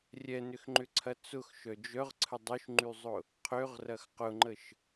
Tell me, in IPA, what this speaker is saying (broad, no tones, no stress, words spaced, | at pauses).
rʲɛnʏxŋ͡ǃʏǀʰɐ t͡sʊxʃœ d͡ʒœʁǀʰə dˤøʃŋ͡ǃyzˤʊ | qʰøʁrɐx qʊŋ͡ǃəʃ